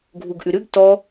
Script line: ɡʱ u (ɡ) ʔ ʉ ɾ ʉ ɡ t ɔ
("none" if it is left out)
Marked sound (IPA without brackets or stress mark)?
ɡ